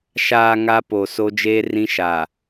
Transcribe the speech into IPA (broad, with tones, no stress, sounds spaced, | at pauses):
ʃ aː˨ ŋ a˦ p o˨ s o˦ d͡ʒ eː˦ r ĩ˦ ʃ aː˨